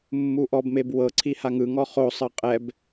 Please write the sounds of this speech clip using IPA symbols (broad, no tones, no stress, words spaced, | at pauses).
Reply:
mːuʔɔbmeb wɤǀʰi haŋɯŋɔ χosˤɤ qʼɛb